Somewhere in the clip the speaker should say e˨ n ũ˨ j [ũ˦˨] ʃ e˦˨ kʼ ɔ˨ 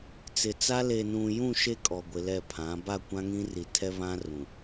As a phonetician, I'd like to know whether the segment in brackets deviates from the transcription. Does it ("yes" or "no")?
no